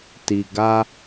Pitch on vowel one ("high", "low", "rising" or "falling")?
low